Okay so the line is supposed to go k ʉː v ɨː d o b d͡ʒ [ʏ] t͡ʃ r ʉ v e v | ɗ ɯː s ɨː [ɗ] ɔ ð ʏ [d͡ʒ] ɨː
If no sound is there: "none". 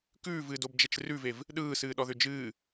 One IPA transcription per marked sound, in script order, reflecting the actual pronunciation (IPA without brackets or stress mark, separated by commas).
ɛ, ɗ, d͡ʒ